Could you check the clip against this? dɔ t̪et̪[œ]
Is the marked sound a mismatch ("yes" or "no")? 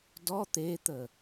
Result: yes